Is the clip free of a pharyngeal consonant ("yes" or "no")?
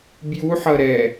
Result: no